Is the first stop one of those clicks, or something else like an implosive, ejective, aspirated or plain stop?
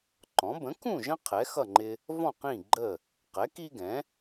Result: click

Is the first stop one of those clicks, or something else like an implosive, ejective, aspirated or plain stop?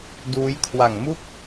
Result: plain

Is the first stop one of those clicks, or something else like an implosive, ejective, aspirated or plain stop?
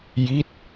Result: plain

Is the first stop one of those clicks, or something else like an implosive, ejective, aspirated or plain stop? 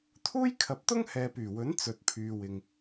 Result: aspirated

